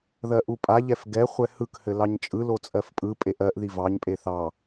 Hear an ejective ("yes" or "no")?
yes